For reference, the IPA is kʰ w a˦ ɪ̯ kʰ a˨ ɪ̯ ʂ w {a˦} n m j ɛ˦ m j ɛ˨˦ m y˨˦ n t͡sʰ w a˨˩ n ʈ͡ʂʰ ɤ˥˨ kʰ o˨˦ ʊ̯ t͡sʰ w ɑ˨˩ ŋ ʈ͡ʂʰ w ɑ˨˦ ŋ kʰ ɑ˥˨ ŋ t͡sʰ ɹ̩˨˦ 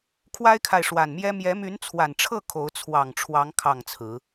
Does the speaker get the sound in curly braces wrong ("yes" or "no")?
yes